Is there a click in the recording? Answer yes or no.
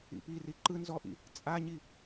yes